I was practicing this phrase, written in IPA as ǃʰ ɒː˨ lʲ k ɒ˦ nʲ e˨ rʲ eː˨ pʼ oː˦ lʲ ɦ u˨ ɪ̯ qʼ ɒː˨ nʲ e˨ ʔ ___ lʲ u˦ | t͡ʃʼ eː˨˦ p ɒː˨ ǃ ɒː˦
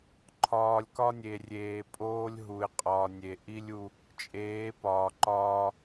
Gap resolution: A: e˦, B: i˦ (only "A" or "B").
B